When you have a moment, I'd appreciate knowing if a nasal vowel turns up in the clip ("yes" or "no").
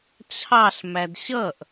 no